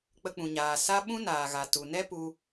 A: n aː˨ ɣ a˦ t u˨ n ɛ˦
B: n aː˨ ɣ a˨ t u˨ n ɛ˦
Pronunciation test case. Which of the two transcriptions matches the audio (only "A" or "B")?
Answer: B